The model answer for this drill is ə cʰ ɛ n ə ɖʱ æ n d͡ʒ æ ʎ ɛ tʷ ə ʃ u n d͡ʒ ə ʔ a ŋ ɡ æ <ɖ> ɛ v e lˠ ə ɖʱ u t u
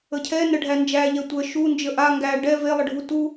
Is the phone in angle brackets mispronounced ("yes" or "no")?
no